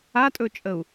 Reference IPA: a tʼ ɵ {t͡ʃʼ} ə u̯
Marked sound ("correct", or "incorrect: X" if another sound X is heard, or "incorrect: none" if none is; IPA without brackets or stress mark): correct